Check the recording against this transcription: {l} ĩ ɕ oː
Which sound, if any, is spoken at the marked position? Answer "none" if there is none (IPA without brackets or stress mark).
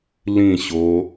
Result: l